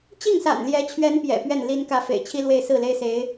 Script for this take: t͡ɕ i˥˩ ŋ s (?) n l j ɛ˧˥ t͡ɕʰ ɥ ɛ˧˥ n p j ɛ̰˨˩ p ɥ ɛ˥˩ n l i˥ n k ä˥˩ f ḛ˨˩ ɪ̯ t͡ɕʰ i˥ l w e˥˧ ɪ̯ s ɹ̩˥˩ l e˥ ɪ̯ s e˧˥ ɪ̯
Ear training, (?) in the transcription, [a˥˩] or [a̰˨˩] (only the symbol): a̰˨˩